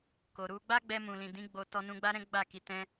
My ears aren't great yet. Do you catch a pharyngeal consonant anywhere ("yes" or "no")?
no